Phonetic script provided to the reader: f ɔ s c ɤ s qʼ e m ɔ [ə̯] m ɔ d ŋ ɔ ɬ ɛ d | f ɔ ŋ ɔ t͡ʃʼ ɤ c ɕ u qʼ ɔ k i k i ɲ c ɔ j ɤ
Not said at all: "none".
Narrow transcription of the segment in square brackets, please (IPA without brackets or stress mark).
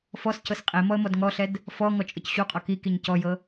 ə̯